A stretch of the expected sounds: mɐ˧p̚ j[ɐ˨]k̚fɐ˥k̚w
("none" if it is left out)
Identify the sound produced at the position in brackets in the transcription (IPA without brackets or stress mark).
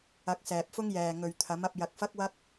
ɐ˧